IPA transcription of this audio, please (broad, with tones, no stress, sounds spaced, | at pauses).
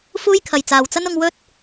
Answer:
f uː˥ j kʰ ɐ˨ j t͡s aː˨ w t͡s ɐ˥ n ʊ˧ ŋ w ɵ˥ t̚